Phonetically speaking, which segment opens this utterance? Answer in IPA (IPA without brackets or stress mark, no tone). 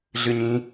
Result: ɮ